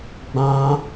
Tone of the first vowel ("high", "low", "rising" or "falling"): high